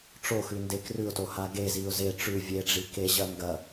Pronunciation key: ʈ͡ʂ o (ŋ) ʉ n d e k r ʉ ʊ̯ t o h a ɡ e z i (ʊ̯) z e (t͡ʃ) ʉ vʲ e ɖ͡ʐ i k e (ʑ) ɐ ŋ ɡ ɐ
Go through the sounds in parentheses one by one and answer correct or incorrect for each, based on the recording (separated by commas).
incorrect, correct, incorrect, correct